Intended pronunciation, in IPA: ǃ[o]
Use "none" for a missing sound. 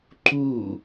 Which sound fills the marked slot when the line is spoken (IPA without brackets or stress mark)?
u